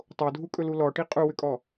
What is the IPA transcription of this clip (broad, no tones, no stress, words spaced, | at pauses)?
tˤodʱukʼɵlu lɔʈi qʼuwʏkʼɔ